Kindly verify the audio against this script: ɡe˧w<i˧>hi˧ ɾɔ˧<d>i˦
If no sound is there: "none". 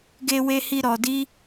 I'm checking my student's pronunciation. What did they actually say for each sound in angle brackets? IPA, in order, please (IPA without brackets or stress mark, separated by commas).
e˧, d